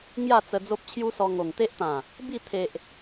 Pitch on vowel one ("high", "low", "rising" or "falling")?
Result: falling